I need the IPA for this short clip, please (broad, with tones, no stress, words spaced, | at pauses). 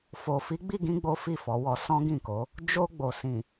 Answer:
fo˨ fi˨˦ɡ͡bi˦˨ɡĩ˧ ɡ͡bo˦fi˦˨fɔ˨˦wɔ˧ sɔ̃˦ɡĩ˦˨ko˨˦ | d͡ʒo˧ɡ͡bo˨sĩ˨